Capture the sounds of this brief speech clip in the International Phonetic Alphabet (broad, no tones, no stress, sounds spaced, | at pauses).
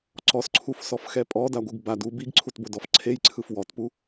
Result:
ǀ ɔ s ǀʰ u f s ɔ f x ɛ pʼ ɔ d a ɡʷ ɯ ɡ b a d u b i ɡ ǀʰ u t b o d ɔ f ǀʰ e j ǀʰ ɯ f w ɔ t p u